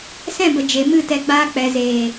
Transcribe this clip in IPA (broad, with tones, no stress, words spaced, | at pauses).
sɛ̃˦˨bə˨ d͡ʒe˨mɨ˦˨tɛ˧ ɡ͡baː˧k͡pɛ˨zeː˨